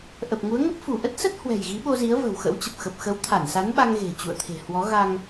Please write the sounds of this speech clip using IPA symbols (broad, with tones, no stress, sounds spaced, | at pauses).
ʔ ə˨˩ p̚ ŋ u˨˦ ə̯ ŋ ə˦˥ p̚ f u˧˩ ʔ ə˦˥ t̚ s ə˦˥ t̚ h w ɛ̤˨˩ j ɣ i˨˦ ɓ o˧ z i˨˦ ə̯ v ə̤˨˩ w x ə̰˧˥ w t͡ɕ ə˨˩ p̚ x ə˨˩ p̚ x ə˨˦ w t̪ʰ a˧˩ n s a˨˦ n ɓ a˧ ŋ ɣ e̤˨˩ t͡ɕ ṵ˧˨ ə̯ t̪ʰ e̤˨˩ h w ɔ˨˦ ɣ a˧ ŋ